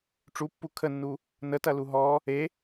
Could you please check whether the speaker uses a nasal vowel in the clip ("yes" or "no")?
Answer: no